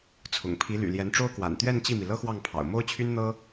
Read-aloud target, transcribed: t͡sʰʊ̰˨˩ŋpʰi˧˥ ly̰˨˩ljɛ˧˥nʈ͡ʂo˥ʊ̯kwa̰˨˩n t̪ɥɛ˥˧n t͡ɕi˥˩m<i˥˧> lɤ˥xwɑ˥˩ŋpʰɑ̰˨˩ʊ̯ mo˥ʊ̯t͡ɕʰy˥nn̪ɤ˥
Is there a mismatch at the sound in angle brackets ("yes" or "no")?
yes